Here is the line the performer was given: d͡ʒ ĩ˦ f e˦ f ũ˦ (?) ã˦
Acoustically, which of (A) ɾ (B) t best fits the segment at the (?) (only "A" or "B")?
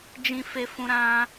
A